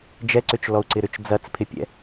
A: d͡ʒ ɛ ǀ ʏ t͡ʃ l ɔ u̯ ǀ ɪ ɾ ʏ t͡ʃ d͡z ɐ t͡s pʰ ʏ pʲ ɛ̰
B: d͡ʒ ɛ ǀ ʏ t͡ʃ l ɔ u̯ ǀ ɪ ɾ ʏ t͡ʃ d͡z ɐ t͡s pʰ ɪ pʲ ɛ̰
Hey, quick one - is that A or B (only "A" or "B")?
B